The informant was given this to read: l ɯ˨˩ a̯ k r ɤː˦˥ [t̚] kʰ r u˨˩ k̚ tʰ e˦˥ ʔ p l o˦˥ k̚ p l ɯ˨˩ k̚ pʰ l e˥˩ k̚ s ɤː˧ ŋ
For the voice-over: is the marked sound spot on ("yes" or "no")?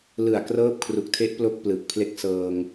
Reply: no